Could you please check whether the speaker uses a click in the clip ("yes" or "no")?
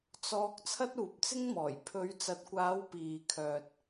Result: no